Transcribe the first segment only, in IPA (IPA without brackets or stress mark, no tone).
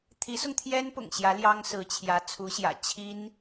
t̪ʰ